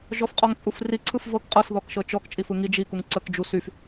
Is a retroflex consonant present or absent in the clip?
absent